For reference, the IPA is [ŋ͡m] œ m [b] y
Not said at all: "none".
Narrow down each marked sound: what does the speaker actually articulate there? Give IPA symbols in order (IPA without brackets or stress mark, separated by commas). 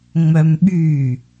ŋ͡m, ɓ